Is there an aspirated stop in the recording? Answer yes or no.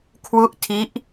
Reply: yes